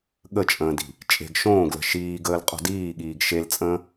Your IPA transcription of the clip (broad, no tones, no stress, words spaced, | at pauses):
ɠət͡ʃʼə̃ːdi̤ | t͡ʃʼe̤ɡ ʃõːɡlə̤ ʃiːɡəːl qʼo̤diːɠiːɡ ʃelt͡sʼə̃ː